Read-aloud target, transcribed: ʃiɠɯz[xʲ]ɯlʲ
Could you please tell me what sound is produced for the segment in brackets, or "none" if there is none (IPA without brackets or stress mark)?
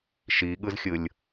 xʲ